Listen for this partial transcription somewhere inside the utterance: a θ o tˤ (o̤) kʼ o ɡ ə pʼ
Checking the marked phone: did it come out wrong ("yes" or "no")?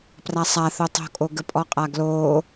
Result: no